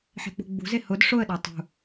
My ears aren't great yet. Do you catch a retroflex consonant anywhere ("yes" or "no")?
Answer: yes